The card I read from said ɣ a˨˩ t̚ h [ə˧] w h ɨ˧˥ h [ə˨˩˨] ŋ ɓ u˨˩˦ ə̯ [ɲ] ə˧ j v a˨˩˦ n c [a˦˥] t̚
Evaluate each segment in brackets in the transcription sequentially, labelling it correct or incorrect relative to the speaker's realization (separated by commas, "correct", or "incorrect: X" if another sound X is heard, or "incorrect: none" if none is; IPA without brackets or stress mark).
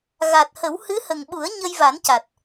incorrect: ə˨˩˦, incorrect: ə˨˩, correct, incorrect: a˨˩